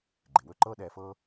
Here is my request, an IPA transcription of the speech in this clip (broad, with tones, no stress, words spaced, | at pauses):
ɡ͡ǃɪ˩wɵ˥ ǃɤː˥ɗɛː˧fɤː˥